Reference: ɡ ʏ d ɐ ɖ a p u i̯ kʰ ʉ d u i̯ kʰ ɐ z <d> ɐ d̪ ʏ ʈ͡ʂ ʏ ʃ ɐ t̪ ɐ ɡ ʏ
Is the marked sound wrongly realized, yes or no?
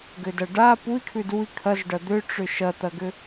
yes